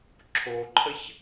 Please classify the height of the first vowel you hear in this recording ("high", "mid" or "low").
mid